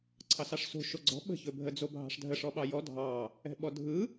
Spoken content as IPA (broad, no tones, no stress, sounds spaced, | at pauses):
ǀʰ ɑ s ɑ ʂ s o̤ ʃ o ɡ͡ǀ ɔ̤ ɓ ə̤ ç ɵ bʱ ə d͡z o bʱ ɑ̤ ʂ dʱ ə ʂ ɔ ɓ ɑ j ɔ dʱ ɑ | ɛ̤ ɓ ɔ dʱ ɯ